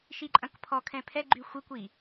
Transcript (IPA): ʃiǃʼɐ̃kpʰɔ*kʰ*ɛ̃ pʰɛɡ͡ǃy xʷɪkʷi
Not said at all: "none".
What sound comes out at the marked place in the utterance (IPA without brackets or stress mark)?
kʰ